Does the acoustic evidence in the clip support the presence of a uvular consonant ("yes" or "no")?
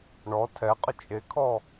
yes